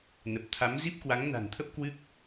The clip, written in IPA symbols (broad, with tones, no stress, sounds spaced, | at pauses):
n ə˨˩ p̚ t̪ʰ a˨˦ m z i˦˥ p̚ k w a˨˦ ŋ n a̤˨˩ n t̪ʰ ə˦˥ p̚ k w ɨ˦˥ k̚